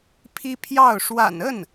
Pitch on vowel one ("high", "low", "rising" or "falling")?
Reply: high